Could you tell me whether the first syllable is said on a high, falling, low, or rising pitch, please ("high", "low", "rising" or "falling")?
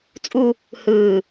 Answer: high